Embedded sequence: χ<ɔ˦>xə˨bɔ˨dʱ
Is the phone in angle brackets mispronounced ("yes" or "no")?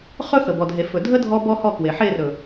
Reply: yes